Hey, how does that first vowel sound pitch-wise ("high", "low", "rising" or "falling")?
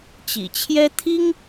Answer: low